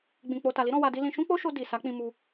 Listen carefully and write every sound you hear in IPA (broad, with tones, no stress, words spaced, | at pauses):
ɡ͡bĩ˨ k͡po˨ta˨li˨˦ ɾɔ̃˧wa˧di˦ lĩ˧ ʃũ˦k͡po˦ʃo˧ di˨ sa˨˦k͡pĩ˧mu˧